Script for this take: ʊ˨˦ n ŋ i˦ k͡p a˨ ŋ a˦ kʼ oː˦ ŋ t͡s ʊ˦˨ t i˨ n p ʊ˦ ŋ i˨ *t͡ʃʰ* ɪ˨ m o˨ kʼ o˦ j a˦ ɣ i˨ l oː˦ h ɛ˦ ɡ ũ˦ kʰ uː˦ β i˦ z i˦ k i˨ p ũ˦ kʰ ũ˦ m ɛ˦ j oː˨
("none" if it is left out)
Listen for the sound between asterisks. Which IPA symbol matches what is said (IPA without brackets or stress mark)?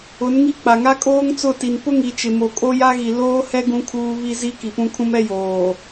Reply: t͡ʃ